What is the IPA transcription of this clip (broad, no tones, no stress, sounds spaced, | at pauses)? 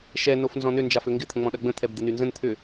ʃ ɛ n o f n z ɔ̃ n ʏ n d͡ʒ a f ø ŋ ɡ ɪ t̪ʰ ə̃ ŋ͡m ɔ̃ ɗ ɐ ɡ͡b ə̃ t̪ʰ ɛ b d̪ ɪ n y n z ə̃ n t̪ʰ ʏ